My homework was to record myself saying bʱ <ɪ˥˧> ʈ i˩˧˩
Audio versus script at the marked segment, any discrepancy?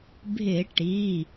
yes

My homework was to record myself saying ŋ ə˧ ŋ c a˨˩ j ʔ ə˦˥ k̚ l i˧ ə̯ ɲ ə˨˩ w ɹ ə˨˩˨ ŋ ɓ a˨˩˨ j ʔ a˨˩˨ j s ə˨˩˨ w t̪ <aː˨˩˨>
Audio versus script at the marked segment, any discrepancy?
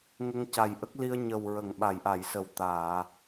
no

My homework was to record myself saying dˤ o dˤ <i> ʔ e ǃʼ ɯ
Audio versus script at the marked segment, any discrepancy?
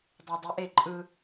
yes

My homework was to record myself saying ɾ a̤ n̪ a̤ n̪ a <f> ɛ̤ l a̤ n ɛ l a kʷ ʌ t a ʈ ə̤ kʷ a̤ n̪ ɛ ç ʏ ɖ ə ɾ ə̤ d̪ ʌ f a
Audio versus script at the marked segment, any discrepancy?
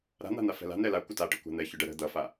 no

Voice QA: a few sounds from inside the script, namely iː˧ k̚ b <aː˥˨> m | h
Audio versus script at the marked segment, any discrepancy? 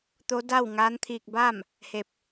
no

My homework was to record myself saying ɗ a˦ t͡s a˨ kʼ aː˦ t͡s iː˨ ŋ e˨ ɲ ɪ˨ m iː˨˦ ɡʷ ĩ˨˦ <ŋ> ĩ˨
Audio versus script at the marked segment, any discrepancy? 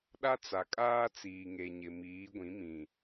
yes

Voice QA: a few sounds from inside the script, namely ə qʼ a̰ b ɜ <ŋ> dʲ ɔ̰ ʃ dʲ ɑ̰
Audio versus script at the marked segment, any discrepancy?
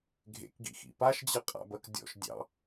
yes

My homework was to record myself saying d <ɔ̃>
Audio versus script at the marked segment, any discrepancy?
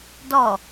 yes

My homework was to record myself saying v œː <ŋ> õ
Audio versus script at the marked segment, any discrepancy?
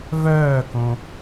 yes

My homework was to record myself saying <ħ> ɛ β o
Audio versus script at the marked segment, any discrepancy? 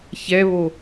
yes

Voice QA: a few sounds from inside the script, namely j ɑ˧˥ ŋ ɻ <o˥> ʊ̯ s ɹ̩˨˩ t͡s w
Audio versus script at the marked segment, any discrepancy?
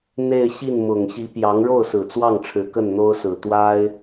yes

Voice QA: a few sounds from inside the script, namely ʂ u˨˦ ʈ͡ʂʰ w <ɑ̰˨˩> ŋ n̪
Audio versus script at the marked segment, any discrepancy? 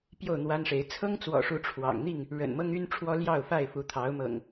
no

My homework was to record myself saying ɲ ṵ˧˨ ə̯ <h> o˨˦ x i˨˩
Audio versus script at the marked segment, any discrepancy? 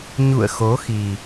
yes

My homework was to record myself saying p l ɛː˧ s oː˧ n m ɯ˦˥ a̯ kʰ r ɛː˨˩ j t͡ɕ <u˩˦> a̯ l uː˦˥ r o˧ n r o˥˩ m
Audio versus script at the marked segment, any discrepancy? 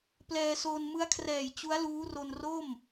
yes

